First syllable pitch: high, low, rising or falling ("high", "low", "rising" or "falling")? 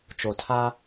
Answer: low